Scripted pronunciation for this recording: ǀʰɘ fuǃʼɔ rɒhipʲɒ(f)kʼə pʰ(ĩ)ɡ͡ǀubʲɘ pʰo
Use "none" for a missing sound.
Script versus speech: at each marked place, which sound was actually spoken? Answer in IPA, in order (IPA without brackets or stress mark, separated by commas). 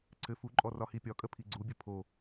none, i